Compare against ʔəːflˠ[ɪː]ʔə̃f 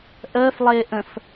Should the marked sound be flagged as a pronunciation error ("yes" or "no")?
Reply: no